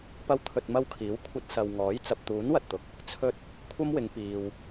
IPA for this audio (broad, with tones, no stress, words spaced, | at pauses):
pɐ˥wt̪ʰɵ˧t̚mɐ˥wkʰiː˨˥w kʷʰɐ˧t̚ sɐ˨wŋɔː˨˥j t͡sɐ˨p̚t̪uː˨˥n wɐ˧t̚t̪ʊ˨˥k̚ | t͡sʰɵ˧t̚ | kʷʰɐ˥mwɪ˨˧ŋpiː˨w